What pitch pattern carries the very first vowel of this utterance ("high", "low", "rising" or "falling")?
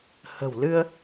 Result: low